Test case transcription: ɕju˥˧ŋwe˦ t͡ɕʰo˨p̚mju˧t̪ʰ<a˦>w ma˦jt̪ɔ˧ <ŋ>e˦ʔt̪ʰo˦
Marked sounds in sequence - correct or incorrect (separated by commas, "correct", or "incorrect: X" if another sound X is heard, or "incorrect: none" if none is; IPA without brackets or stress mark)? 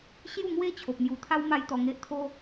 correct, correct